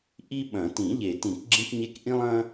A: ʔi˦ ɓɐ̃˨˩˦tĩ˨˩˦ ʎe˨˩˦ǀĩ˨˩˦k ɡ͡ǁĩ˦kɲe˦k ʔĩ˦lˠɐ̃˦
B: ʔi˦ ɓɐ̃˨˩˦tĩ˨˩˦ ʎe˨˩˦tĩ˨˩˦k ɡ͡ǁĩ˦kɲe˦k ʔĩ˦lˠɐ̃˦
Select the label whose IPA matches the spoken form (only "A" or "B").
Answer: B